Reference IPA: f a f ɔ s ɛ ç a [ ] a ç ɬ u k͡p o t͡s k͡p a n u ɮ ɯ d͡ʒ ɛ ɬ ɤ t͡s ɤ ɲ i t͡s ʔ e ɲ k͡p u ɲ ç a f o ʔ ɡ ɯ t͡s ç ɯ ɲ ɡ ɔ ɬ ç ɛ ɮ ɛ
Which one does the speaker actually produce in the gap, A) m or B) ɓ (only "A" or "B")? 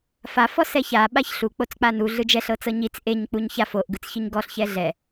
B